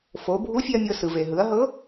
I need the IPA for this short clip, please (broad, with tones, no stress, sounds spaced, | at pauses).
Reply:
f o˩˧ bʱ u˧˥ fʲ e˧ ɐ̯ mʲ ɤ˧ s ɯ˩ v e˩ ɦ ɯ˩˧ ɐ̯ ɦ ɤ˧˥